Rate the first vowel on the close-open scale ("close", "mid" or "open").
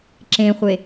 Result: mid